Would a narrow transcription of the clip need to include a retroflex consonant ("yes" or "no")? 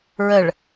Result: yes